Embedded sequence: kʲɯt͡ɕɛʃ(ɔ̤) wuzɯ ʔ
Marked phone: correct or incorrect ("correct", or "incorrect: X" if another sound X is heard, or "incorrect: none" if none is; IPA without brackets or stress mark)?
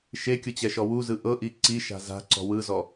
incorrect: ɔ